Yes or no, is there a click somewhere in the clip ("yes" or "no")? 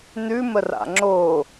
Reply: yes